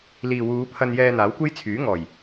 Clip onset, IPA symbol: l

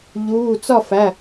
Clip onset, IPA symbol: ʎ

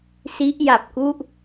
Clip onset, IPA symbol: s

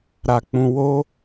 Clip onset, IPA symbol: ɾ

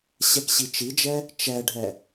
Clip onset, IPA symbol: ɕ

